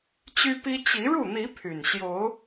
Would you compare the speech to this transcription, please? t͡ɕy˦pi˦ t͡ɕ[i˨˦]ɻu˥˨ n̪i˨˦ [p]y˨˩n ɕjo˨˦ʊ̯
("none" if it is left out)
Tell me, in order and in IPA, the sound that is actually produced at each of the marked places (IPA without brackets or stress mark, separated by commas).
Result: i˨˦, pʰ